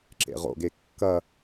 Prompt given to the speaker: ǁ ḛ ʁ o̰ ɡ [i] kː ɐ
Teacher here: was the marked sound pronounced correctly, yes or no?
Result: no